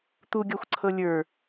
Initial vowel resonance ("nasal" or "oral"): oral